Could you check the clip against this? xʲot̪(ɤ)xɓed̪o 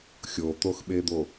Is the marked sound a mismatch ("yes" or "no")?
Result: yes